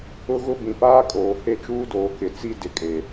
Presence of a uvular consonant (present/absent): absent